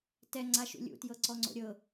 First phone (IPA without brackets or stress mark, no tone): t